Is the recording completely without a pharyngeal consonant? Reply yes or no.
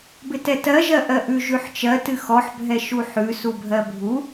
no